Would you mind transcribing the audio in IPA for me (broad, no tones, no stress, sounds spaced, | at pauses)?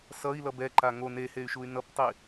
s ʌ i̯ l ʌ b ɛ ǃ a ŋ o n e h e y̯ ʃ u y̯ n ʌ p tˤ i